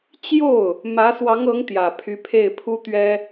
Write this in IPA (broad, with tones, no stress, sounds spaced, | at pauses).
t͡ɕ j o˥˩ ʊ̯ | m ä˧˥ s w ɑ˧˥ ŋ ɤ˧˥ ŋ t̪ j ä˨˩ pʰ y˧˥ pʰ e˥˩ ɪ̯ pʰ u˥ t̪ ɥ ɛ˥